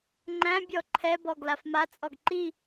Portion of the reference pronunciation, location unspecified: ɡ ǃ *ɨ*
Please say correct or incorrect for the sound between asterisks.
incorrect